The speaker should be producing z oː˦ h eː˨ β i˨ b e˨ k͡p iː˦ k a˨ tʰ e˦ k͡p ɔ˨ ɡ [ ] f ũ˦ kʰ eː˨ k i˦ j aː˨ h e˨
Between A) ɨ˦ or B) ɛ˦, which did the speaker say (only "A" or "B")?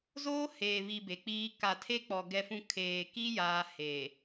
B